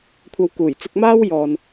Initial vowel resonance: oral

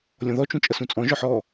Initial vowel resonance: nasal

